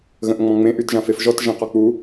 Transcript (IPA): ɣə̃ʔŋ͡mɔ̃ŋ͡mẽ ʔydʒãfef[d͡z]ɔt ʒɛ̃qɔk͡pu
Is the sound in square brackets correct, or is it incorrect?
incorrect